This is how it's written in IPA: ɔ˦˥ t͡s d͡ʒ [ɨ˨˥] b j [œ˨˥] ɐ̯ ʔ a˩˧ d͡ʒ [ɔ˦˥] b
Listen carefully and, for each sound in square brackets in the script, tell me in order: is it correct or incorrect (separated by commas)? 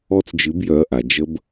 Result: correct, correct, incorrect